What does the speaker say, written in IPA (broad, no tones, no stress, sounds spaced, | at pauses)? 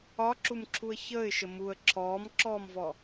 ɒ ǁ u m ǁʰ u ə̯ ç əː ɪ̯ ʃ ə m u ə̯ ǁʰ ɔː m ǁ ɔː m v ɔ